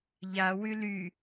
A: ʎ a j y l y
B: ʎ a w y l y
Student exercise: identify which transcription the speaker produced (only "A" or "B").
B